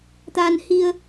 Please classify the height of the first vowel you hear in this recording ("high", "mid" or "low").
low